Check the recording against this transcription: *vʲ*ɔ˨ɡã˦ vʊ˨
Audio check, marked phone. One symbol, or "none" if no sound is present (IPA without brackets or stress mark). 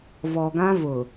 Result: v